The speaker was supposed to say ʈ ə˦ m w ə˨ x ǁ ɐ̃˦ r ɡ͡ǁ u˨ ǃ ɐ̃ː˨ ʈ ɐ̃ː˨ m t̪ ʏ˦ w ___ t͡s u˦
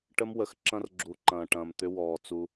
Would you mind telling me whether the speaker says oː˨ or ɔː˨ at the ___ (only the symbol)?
ɔː˨